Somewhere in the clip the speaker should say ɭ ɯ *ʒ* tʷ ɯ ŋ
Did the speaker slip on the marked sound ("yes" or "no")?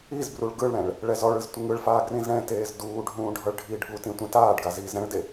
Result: yes